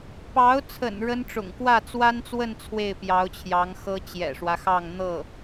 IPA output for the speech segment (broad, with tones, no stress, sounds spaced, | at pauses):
p ɑ˧˥ ʊ̯ t͡sʰ ə̰˨˩ n ɻ ə˥ n ʈ͡ʂ ʊ̰˨˩ ŋ k w ä˥˩ t͡s w a˥ n t͡s w ə˥˧ n t͡sʰ w e˥˩ ɪ̯ p j ɑ˧˥ ʊ̯ t͡ɕʰ j ɑ˧˥ ŋ x ɤ˥ t͡ɕ j ɛ̰˨˩ ʂ w ä˦ x ɑ˥˧ ŋ n̪ ɤ˥˩